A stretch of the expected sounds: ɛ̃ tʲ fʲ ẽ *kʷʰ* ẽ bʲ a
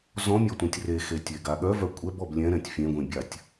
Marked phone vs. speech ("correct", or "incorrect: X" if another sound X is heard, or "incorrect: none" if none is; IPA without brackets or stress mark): incorrect: ɡʷ